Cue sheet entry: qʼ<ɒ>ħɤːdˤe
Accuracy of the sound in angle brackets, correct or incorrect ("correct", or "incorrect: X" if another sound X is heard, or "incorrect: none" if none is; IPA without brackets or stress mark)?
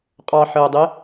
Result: incorrect: ɑ